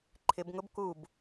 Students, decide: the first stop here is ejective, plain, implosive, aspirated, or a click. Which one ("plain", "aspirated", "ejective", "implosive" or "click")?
click